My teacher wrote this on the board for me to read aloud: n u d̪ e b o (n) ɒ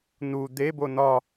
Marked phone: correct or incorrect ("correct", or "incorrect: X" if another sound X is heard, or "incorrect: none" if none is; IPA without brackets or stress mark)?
correct